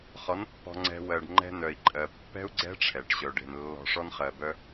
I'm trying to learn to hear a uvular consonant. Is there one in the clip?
yes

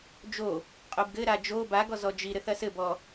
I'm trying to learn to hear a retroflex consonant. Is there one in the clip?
no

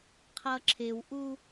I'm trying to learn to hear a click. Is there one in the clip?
yes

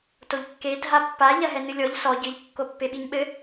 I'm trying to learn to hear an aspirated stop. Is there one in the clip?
no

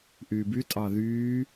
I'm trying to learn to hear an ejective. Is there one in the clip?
yes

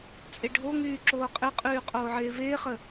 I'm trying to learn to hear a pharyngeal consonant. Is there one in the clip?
yes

